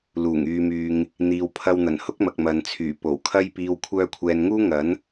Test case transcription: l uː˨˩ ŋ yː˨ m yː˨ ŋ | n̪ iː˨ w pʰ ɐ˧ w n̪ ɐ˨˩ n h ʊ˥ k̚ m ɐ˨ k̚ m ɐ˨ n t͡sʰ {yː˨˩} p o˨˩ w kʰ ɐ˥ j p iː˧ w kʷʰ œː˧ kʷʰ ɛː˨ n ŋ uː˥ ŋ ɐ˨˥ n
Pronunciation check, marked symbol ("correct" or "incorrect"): correct